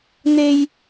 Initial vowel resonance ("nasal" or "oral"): oral